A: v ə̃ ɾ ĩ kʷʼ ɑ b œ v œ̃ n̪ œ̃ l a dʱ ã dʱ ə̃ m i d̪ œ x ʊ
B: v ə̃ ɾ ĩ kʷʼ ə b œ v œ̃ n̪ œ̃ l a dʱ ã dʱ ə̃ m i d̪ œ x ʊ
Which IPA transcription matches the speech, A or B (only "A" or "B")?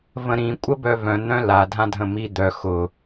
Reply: B